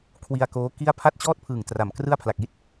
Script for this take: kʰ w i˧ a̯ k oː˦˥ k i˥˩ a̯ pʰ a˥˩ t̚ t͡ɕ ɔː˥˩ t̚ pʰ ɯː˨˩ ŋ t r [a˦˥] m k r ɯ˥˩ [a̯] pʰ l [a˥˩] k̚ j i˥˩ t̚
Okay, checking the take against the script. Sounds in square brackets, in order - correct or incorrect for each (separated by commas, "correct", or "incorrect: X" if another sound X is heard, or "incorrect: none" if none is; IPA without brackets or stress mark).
incorrect: a˨˩, correct, incorrect: a˨˩